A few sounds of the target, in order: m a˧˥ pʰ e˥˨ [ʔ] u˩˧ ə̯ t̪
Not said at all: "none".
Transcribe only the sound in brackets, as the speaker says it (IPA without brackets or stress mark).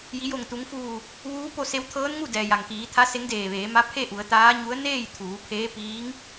ʔ